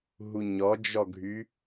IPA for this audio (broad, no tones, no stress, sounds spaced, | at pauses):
ɦ u ɲ ɔ d͡ʒ ɔ ɡʱ y